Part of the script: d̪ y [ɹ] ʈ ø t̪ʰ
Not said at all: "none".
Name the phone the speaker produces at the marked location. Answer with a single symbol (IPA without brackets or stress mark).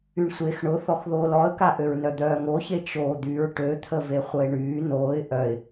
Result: ɹ